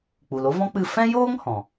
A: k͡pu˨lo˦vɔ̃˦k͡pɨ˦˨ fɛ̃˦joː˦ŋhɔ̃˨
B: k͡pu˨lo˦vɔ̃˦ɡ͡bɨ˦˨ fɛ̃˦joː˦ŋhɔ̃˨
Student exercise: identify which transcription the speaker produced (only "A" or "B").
A